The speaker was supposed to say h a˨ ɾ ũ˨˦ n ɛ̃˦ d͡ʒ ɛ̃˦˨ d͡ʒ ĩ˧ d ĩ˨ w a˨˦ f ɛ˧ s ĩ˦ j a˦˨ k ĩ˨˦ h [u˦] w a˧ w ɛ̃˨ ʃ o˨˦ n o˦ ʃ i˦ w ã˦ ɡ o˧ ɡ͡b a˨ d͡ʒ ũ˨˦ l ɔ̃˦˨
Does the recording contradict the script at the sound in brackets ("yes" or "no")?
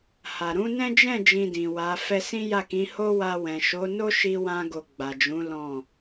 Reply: yes